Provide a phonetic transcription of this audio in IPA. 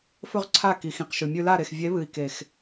f ɵ˦ ʁ ǀʰ a˦˨ k i˨ x ĩ˨ q ʃ ʉ˨ mʲ ʉ˧ l a˦˨ ɾ e˨ x vʲ e˨˦ β ɨ˨ i̯ k e˨ x

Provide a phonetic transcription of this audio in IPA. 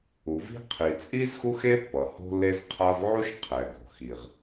u˩ v i̤˥ qʰ i˩ t͡sʼ i˥ z x u˥ x e˥ pː ʌ˩ h o̤˥ lː e˥ z qʰ a˥ v ʕ u˥ ʃ qʰ ɛ˩ ɡ o̤˩ x i˩ ʁ

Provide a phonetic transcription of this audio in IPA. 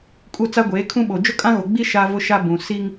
kʼ u˦˨ t͡s a˦ ɡʷ eː˨˦ kʰ ũ˦ ɓ o˨ d͡ʒ ʊ˦ kʼ ã˦ ɣ o˨ ɡ͡b i˦ ʃ a˦ v ʊ˦ ʃ a˦ b ũ˨ s i˦ ŋ

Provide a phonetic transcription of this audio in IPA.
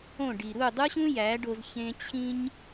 õ˦˨ ɖ i˨ ɾ u˦˨ dˤ u˦ ɕ ũ˦ j æ˨˦ ɖ o˧ z ç ẽ˧ t͡ɕʰ ĩ˦ ɲ

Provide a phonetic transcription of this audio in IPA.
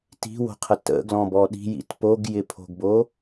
t i̤ w o̤ qʰ ə t ə̰ ɡ l ɔ̃ b ɔ ɗ i̤ j ḭ t p o ɡ j ɪ pʰ o̤ ɡ b o

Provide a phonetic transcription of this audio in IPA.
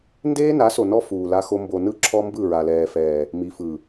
n d eː˦ n a˨˦ s o˨ n ɔ˦ f uː˨ l a˦ x o˦ m b o˨ n ɯ˦ ǁʰ ɔ˦ m b ɯ˦˨ ɹ a˨ l ɛː˨ f ɛː˨ | m i˨ f ɯ˨

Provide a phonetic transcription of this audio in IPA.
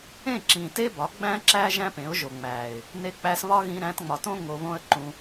ẽ˦˨ ǁ ĩ˨ t e˦ b ɒ˨˦ ɡ͡b æ̃˦ ǁ æ˦ ʒ æ̃˦ p ẽ˨˦ ʊ̯ ʒ o˨ ŋ͡m æ˨ ɪ̯ | n e˧ k͡p æ˧ s β ɒ˦ ɣ ĩ˧ ɾ æ̃˧ t ŋ͡m ɒ˨ t õ˦ ŋ o˧ β õ˦ ə̯ ǃ ũ˧

